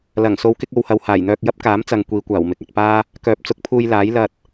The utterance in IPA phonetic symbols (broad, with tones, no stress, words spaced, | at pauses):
lɐ˨˩ŋ so˨˧wkɪ˧k̚o˨whɐ˨w haː˨˩jn̪œː˧k̚ jɐ˥p̚kaː˨˥mt͡sɐ˨ŋ kʷiː˨˧kʷaː˨˩wmɪ˨˥k̚ ɐ˨t̚paː˥ | kœː˨˥p̚t͡sʊ˨˥k̚pʰuː˧jlaː˨˥j lɐ˧t̚